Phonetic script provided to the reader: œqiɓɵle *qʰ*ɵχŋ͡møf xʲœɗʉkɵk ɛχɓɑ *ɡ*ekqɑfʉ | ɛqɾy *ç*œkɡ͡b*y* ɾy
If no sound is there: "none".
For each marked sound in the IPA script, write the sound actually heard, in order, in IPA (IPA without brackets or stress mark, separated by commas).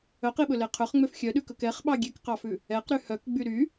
qʰ, ɡʲ, h, y